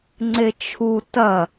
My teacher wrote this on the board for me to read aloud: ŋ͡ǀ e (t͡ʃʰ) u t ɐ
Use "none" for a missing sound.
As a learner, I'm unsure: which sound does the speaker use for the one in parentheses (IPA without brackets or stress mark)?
t͡ʃʰ